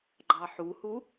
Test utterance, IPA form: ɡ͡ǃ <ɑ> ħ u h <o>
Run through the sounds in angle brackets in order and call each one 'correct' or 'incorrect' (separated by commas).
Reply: correct, incorrect